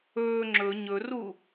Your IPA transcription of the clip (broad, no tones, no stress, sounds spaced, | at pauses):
ɵː ŋ͡ǁ ɵ ɲ ɵ r u